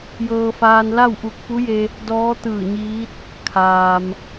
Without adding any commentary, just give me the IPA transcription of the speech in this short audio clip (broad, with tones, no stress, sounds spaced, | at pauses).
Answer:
j ɤː˧ f aː˧ n l a˥˨ w ʔ u˧˩ k̚ p u˧˥ j e˧ | d ɔː˧˥ t̪ ɯː˧˩ ɲ iː˧˥ t̚ | kʰ aː˩ m